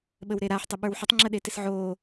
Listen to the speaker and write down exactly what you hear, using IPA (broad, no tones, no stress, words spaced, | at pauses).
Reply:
ɓəwɾeɾaħ tˤɪɓə˞wħətˤ ŋ͡ǁəɗetɪsʕoː